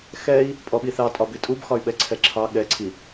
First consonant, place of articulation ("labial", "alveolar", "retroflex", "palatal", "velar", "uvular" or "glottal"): velar